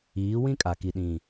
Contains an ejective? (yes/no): yes